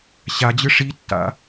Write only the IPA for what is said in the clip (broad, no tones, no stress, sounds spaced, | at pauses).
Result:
ɕ a d͡ʑ ɯ ʂ i tː a̰